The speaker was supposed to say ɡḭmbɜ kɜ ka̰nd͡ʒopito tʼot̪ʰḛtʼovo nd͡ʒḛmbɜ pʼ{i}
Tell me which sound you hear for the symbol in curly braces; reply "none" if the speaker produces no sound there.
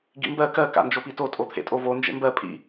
ḭ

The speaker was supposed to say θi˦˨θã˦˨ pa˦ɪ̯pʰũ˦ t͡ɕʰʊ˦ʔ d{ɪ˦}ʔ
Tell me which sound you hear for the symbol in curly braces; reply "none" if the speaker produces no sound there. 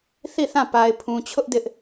ɪ˦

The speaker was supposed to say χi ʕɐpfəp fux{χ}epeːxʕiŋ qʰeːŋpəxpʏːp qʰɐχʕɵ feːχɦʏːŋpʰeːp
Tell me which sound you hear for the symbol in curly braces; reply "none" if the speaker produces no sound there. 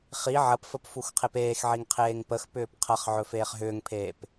qʰ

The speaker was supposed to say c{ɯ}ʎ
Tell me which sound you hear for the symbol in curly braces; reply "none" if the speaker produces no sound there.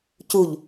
u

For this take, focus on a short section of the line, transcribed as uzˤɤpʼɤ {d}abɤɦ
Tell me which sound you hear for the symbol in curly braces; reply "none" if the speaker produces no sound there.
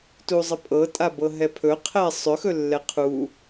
tʼ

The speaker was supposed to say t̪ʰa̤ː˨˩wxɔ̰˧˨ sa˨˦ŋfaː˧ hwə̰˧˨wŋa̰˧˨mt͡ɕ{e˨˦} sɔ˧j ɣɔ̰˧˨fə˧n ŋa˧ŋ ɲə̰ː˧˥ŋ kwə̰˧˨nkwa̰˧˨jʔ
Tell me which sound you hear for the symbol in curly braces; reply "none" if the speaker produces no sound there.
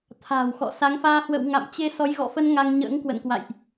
e˧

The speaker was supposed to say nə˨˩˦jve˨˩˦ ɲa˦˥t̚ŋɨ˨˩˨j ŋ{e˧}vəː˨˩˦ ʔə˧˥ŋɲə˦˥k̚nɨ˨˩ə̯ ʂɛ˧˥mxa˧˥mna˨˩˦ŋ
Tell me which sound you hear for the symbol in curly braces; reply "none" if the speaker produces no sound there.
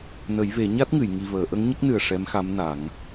i˧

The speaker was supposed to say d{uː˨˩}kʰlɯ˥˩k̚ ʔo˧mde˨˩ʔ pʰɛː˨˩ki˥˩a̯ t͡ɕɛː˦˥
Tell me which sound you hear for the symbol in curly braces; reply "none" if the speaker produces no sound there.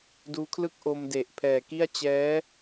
uː˦˥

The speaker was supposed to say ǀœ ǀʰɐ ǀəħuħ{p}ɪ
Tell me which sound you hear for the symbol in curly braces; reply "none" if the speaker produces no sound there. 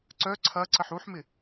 m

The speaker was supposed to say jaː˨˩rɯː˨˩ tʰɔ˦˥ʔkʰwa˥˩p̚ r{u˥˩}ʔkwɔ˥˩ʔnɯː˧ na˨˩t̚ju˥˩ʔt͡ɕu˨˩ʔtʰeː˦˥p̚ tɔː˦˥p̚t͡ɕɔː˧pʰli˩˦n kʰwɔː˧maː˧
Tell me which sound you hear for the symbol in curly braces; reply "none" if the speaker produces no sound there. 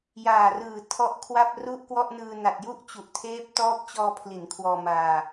u˥˩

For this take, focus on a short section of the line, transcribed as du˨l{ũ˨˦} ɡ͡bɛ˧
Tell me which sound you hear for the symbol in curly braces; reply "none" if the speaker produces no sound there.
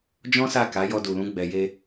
ũ˨˦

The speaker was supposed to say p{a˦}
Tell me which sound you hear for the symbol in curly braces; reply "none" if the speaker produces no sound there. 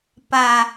a˨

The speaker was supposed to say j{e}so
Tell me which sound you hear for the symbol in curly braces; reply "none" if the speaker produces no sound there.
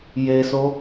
e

